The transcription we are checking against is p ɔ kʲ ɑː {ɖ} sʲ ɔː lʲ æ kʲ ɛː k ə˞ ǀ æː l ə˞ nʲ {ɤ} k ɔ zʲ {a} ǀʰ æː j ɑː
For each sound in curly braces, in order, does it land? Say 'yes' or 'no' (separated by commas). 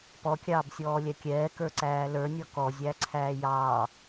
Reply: no, no, no